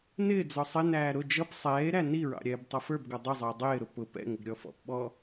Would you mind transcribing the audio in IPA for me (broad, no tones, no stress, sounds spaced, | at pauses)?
n ɪː d͡z ɔ sˤ ɪ n æː ɾ ʊ d͡ʒ ʌ p sˤ ɛː e̯ ɾ æ n i ɹ ɑ̰ ɾʲ ɛː b tˤ ʌ f ə˞ b ɡ ɔ dˤ ʊ zˤ ɪː dˤ ɪː ɾ ʊ p ʊ p ɛ̰ ŋ ɪ ɡ ɾʲ ɔ f ɔ̰ p ɓ ɔ